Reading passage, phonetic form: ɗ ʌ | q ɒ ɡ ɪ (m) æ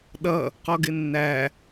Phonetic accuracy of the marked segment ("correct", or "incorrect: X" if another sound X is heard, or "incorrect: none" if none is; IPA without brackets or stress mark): incorrect: nː